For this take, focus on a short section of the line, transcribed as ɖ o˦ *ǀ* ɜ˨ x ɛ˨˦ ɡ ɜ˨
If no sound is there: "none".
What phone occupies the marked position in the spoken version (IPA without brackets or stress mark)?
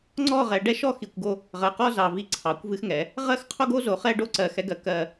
ǀ